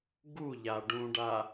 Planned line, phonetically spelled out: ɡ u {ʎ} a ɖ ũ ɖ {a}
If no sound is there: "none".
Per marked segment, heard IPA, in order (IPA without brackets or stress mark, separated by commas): ʎ, a